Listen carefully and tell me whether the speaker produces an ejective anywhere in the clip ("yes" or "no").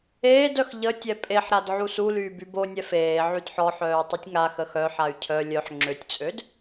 yes